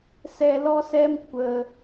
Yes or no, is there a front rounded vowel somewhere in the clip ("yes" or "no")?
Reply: no